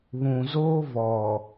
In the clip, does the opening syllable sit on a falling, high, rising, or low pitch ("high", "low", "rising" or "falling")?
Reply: low